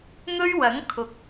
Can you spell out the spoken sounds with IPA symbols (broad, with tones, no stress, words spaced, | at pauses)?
n̪ɵ˥ɥwɐ˨˥ŋkʰʊ˨˥k̚